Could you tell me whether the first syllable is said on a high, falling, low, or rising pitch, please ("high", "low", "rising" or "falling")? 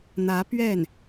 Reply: rising